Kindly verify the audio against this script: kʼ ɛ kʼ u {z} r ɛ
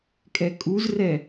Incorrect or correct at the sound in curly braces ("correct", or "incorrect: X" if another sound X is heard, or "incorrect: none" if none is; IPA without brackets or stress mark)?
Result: correct